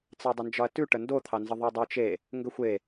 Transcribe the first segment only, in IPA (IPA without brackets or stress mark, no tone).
t͡s